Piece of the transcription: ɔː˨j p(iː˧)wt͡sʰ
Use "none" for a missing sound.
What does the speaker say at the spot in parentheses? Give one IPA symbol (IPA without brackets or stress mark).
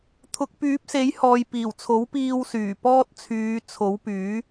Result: iː˨˩